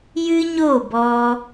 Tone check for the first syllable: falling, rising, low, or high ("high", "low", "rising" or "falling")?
high